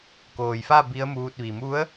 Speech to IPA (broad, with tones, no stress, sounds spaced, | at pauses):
k oː˩ j f a˥˨ b i˧˥ ə̯ m uː˧ t̚ ʋ i˩ m u˧˥ ə̯